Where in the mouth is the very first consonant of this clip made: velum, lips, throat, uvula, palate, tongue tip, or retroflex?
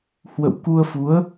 throat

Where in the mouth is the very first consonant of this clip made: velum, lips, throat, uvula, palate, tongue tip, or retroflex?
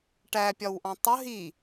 retroflex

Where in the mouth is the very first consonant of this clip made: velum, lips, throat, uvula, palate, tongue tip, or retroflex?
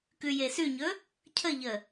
velum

